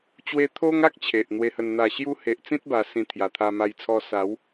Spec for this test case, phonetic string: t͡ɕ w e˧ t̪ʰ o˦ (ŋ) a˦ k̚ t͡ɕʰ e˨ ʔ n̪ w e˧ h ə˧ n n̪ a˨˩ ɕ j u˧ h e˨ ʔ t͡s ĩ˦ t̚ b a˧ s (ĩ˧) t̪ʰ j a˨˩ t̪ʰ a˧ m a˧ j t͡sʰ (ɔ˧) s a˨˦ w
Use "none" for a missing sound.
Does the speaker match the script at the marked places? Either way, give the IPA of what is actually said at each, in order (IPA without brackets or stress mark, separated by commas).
ŋ, ĩ˧, ɔ˧